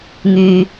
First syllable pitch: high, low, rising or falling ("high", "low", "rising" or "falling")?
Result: low